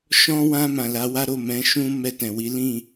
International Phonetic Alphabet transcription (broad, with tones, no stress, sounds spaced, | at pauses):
ʃ ɔ̃˧ w ã˧ m ã˨ l a˨˦ w a˦ ɾ o˦˨ m ɛ̃˨˦ ʃ ũ˦ m ɛ˦˨ t ɛ̃˨ w i˨˦ l ĩ˦˨